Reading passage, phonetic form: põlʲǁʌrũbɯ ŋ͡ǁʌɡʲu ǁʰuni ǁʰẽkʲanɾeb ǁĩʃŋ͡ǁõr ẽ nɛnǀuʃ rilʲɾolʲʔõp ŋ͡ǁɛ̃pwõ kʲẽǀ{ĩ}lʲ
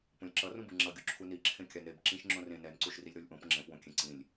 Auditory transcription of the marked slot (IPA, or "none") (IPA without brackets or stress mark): ĩ